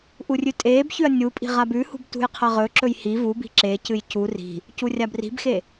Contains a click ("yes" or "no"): yes